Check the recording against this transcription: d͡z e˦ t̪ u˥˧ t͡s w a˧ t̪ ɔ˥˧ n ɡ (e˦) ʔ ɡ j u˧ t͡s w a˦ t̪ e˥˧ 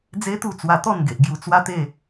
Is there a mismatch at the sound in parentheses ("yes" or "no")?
yes